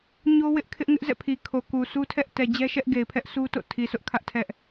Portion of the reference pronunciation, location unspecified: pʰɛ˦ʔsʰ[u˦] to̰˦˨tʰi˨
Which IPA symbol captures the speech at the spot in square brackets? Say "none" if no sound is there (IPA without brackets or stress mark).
u˦